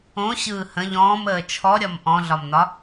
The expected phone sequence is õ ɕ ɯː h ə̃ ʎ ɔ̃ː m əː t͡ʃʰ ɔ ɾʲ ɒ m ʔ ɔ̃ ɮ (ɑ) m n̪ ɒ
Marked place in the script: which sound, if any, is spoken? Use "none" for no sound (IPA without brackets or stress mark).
ɒ